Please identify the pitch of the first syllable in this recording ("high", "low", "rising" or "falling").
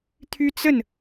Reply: high